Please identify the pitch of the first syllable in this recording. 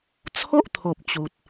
high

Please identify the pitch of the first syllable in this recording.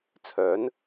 rising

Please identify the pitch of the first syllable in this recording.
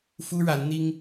high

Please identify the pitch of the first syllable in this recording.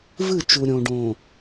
falling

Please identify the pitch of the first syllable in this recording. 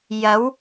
rising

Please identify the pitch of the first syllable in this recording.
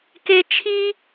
high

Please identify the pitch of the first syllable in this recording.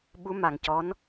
rising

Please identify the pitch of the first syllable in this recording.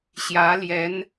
rising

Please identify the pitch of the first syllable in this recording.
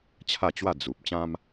falling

